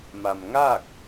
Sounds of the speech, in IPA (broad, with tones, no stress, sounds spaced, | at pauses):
m a˩ m ŋ a˥˨ k̚